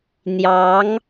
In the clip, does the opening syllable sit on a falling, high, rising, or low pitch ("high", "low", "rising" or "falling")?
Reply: rising